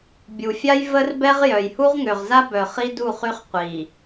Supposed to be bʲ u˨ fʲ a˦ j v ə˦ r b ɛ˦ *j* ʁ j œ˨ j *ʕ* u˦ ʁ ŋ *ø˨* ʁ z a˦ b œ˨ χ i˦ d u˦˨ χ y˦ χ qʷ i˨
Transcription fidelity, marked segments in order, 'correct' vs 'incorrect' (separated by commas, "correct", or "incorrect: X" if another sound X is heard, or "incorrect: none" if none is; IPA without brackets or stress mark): incorrect: none, incorrect: h, correct